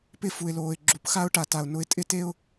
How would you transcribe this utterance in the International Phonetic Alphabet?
pɪ˦˨fu˨ɪ̯loː˨ɪ̯ ɡ͡ǁu˨pxa˦ʊ̯ ʈa˨ta˨ʊ̯ nʊ˧ɪ̯tʼɪ˦te˦ʊ̯

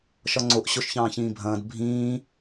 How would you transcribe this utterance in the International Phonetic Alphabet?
ʃɒŋ͡ǀoʔ ɕoʃçɑ̃ːçĩːbʱɐ̃ːd bʱĩː

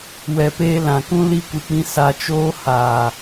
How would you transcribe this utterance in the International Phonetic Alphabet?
wɛ˨peː˧ lã˨kũ˦ li˧kʷɨ˨k͡pĩ˧ sa˧ t͡ʃoː˦ haː˨

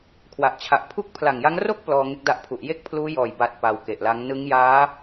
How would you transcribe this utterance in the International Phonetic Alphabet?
kʰwa˨˩ʔt͡ɕʰa˨˩ʔpʰu˥˩k̚ pʰla˨˩ŋja˦˥ŋ ro˥˩k̚ plɔː˧ŋe˦˥k̚da˦˥ʔpʰu˨˩ʔ je˥˩k̚pʰluː˦˥jɔː˨˩j ba˨˩t̚ pa˧wke˨˩ʔla˦˥ŋ nɯ˦˥ŋ jaː˦˥

